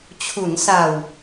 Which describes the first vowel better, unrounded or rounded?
rounded